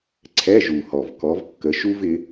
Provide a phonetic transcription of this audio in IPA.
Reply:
ǀʰɛ˧˥˧ʒu˨˩hɔ˨˩v kɔ˨˦vkːə˨˦ ʃu˥vɪ˨˦

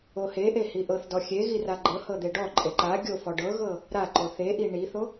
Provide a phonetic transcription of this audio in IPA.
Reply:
oheʔe hiʔɤθdɔ xʲeɣi raɡ͡ǃɤhɤ d̪eɖɔǃʼe ǃa ɡʲofɔ ɖɤɣɤ | ɾaǃo θeʔi ɳiθo

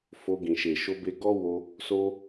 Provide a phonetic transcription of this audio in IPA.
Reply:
fo˧ɡĩ˨ ʃe˨ʃo˧ be˧ɡɔ˦ wo˧ | so˧

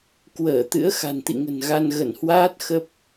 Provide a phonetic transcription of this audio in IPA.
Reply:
kwəː˧˩ t̪ɨ̰˧˥ə̯xa̤˨˩nt̪ḭ˧˨ŋə̤˨˩n ɣa˧nɣə˧˩nhwaː˦˥t̚ xə˦˥p̚

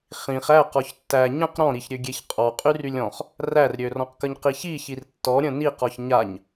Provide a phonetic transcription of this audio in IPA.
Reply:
χĩχ æ qɔçtːæ ɲə̃q ɾɔ̃ɾiçɾʲø ɡʲeçqʼɔ qʼyrylʲɔ̃χ | rærɾʲørɔ̃qkəɲ qiçiçir tːɔɾʲə̃ ni qɔçɲaɲ

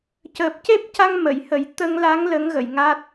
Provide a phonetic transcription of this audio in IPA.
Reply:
cəː˨˩p̚ce˦˥p̚ca˧ŋ mə˨˩˨jhə˨˩˦j t̪ə˧ŋla˧˥ŋ lə˧˥ŋ ɣə˨˩˨jŋa˦˥t̚

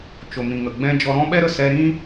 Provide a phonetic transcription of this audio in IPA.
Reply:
t͡ʃo˨mĩ˨ŋə˨ ɡ͡bɛ̃˧ d͡ʒɔ˧ɾɔ̃˦ ɓɛ˦ɾə˦˨sɛ˧ɾĩ˦

